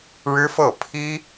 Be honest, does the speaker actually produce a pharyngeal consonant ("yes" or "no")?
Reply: no